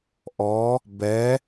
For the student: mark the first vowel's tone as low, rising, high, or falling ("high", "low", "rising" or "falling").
rising